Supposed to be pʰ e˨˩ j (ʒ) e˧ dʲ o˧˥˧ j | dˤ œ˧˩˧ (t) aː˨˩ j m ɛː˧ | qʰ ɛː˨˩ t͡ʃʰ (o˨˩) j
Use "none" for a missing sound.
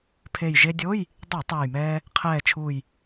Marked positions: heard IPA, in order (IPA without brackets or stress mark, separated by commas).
ʒ, tˤ, u˨˩